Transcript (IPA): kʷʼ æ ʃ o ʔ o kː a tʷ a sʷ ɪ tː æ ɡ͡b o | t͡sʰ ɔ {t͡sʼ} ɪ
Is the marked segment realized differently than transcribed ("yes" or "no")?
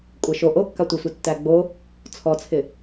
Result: yes